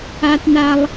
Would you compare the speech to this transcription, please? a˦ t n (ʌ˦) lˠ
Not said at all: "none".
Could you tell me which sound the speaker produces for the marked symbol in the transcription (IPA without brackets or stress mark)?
a˦